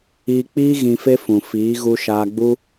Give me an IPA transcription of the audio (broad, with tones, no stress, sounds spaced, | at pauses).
iː˧ k͡p iː˦ ɣ ĩ˧ f e˦ f ũ˨ f iː˨˦ ɣ u˧ ʃ aː˧ ɡ͡b u˦